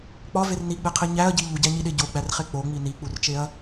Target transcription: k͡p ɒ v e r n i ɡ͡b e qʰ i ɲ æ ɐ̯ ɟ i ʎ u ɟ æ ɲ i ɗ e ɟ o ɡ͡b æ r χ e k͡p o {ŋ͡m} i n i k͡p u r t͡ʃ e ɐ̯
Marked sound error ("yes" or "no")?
no